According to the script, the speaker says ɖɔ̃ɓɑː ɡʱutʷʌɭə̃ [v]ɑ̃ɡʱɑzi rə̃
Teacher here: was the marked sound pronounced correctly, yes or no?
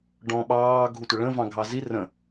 yes